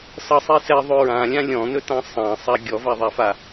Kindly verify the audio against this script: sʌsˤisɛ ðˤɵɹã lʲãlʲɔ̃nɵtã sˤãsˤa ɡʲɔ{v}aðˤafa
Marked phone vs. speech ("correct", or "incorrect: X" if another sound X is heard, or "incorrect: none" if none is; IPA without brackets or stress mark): correct